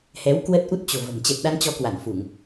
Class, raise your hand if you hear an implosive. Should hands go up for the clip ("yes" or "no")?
yes